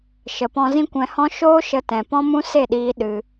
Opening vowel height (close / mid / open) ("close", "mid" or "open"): mid